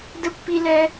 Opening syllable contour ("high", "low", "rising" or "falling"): high